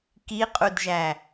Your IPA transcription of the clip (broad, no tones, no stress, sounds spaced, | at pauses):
k i qʼ u d ʒ æ